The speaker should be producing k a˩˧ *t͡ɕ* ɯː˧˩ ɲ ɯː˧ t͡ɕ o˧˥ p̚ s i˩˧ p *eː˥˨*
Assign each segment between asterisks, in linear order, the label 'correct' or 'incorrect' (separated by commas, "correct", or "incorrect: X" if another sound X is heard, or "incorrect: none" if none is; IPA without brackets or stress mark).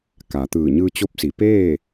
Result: incorrect: t̪, correct